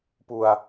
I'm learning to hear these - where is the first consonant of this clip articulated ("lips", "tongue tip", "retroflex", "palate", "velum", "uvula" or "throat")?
lips